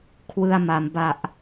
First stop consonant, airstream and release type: aspirated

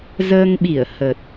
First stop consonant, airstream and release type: implosive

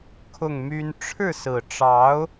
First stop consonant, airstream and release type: aspirated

